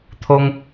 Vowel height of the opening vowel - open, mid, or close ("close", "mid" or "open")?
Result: mid